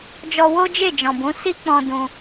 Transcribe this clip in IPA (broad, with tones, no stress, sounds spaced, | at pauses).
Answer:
d͡ʒ ɔ˧ w o˦ d͡ʒ e˦˨ d͡ʒ ɔ̃˨ b ũ˨˦ s i˦ k͡p ɔ̃˧ d ũ˧